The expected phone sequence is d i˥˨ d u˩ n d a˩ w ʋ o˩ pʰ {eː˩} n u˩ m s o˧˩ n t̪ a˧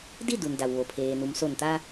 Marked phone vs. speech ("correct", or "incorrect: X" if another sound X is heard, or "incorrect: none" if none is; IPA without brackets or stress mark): correct